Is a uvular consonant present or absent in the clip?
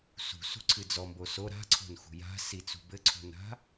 absent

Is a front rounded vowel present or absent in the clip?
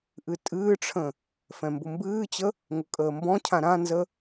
absent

